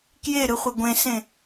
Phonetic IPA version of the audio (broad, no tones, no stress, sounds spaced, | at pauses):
k j e ɾ ɯ χʷ e ɡʷ ẽ s ẽ